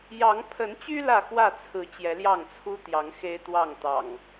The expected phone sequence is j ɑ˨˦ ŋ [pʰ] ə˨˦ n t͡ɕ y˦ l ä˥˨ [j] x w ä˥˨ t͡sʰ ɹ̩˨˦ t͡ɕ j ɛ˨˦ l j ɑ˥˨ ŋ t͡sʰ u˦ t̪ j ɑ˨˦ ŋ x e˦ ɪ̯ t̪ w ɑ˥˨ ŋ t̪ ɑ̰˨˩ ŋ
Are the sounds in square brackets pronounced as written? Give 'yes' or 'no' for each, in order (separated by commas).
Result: yes, no